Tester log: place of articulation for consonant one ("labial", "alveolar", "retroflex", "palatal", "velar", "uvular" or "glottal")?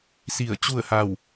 alveolar